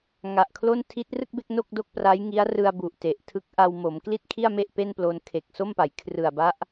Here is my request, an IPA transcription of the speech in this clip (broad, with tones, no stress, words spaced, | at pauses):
ŋa˨˩ʔkʰlo˥˩n tʰi˦˥t̚rɯ˥˩k̚be˥˩k̚ no˥˩k̚do˥˩k̚pra˦˥j ŋi˦˥a̯rɯ˧a̯ bu˨˩ʔte˨˩ʔ tʰɯ˦˥k̚ ʔa˧wmo˩˦m kli˥˩t̚kʰi˥˩a̯ me˥˩ʔ pe˥˩nplo˧n kʰe˨˩k̚ so˥˩mpa˩˦j kʰrɯ˨˩a̯ba˦˥ʔ